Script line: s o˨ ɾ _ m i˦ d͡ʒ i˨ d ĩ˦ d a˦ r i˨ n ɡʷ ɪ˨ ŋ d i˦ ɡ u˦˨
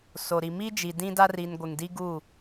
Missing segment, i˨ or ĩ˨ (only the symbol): i˨